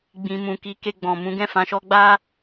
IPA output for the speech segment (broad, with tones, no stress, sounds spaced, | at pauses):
ɡ͡b ĩ˨ m ũ˨ k i˨˦ k e˧ ɡ͡b ɔ̃˨ m ũ˨˦ ɡ ɛ̃˦˨ f ã˧ ʃ ɔ˦ ɡ͡b a˦